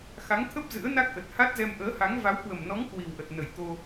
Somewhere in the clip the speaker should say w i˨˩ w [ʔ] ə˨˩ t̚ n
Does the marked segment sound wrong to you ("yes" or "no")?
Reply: no